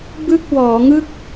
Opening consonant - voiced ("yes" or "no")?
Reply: yes